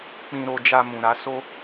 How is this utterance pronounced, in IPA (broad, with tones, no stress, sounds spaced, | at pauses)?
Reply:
k͡p ĩ˧ ɾ o˧ d͡ʒ a˧ m ũ˨ ɾ a˨˦ s o˧